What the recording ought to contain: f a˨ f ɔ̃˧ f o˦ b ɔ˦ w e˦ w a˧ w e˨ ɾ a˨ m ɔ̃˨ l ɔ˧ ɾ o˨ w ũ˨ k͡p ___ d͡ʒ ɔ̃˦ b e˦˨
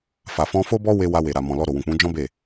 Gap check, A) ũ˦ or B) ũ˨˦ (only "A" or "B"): B